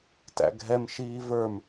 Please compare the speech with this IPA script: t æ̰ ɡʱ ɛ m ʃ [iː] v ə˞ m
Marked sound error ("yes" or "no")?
no